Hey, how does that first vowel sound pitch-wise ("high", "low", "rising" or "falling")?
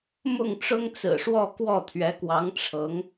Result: falling